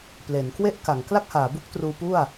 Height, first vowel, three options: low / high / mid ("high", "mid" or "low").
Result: mid